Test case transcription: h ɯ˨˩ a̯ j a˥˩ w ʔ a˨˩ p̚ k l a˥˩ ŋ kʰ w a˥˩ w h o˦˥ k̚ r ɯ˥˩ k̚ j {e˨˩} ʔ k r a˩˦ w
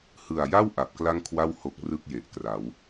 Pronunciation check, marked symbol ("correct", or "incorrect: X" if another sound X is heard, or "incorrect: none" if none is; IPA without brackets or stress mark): correct